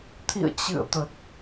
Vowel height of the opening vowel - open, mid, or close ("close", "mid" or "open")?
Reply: close